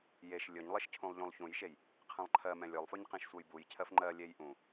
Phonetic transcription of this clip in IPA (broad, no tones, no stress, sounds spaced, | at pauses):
j e ʃ lʲ ɵ ɲ lˠ ɪ ʃ cʰ ũ lˠ ʎ ũ lˠ ç ũ j ʃ e j | qʰ ɛ̃ lˠ ǃʰ ɜ m ɛ̃ lʲ ɵ lˠ f ɵ ɲ q ẽ ʃ sʷ ɜ j b u j cʰ ɜ f ŋ͡ǃ ɜ lʲ e j ʔ ũ